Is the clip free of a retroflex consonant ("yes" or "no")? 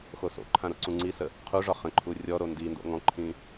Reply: no